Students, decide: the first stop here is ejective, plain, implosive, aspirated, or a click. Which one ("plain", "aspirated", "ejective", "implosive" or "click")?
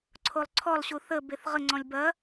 click